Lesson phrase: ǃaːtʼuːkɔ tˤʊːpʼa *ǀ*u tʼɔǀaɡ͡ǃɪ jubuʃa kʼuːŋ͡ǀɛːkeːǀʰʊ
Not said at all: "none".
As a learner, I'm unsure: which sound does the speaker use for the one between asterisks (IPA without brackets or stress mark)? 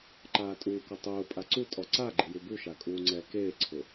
ǀ